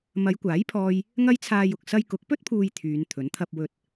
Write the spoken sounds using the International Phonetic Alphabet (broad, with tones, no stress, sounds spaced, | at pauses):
m ɐ˨˧ j kʷ aː˨˥ j pʰ ɔː˥ j | ŋ ɐ˥ j t͡sʰ aː˧ j ʊ˨ k̚ s ɐ˧ j k ʊ˨˥ k̚ p ɵ˥ t̚ pʰ uː˨ j t̪ʰ yː˨˧ n t̪ʰ ɵ˨˥ n t̪ʰ ɐ˧ p̚ w ɵ˨ t̚